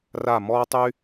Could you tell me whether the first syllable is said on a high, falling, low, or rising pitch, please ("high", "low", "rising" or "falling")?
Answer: falling